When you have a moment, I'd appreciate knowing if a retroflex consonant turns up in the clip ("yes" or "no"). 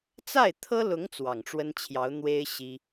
yes